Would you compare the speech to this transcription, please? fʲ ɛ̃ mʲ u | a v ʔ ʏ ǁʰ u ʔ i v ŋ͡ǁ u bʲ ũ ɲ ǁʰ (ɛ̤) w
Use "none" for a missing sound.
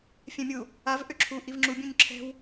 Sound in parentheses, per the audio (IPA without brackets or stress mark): ɛ̤